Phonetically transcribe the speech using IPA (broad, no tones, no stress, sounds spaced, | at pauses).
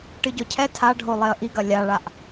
ʈ ɨ ɟ ɔ cʰ ɛ tʰ a ɖʱ o lˠ e ə̯ ʔ i ɡ ɐ lʲ a ɭ a ʔ